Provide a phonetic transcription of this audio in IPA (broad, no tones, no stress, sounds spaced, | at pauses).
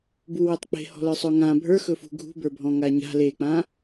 b u w e tˤ k͡p e̤ h ɔ̤ l ə˞ sˤ ɵ ŋ ã bʱ ə˞ x ɵ f ṳ ɡʱ ṳ b ə˞ bʱ ɔ̃ ŋ a ɲ a̤ l e k͡p ã